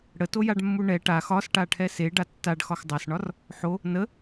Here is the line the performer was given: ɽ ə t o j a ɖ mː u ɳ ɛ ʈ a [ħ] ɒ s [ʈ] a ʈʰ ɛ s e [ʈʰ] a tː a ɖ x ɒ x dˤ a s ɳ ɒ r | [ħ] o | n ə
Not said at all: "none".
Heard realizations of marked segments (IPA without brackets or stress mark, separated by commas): x, ʈ, ɖ, ħ